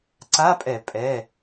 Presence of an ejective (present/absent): present